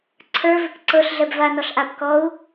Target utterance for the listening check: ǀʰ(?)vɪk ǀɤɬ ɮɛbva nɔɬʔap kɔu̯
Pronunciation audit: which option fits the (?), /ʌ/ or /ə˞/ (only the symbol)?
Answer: ə˞